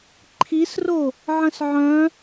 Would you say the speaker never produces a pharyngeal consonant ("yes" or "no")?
no